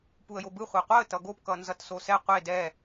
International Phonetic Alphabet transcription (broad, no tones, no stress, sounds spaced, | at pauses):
p u ə̯ j o b ɯ χʷ ɛ qʷ a ə̯ t ʌ ɡ o p k ʌ n z ʌ t s o s ɛ qʷ e d ɛ